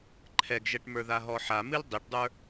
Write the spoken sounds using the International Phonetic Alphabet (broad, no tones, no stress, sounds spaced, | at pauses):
ǃʰ ɛ ɡ ʒ ɛ ʈ m ə˞ ð a ɦ ɔ ħ a m ɨ l dˤ i ʈ dˤ ə˞